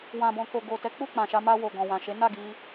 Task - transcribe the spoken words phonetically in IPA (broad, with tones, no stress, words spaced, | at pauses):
wã˨bɔ̃˨ ko˨ɡo˨tɛ˨˦ k͡pu˦˨k͡pã˨ʃa˧ ma˧wo˨ ɡɔ̃˨wã˨ʃe˨˦ na˦˨ɡi˧